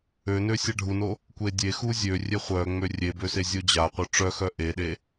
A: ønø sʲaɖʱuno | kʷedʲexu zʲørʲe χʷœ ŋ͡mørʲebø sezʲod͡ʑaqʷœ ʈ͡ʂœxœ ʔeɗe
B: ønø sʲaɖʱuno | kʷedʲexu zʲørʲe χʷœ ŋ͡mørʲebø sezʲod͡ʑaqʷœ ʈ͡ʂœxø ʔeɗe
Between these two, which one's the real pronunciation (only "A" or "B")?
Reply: A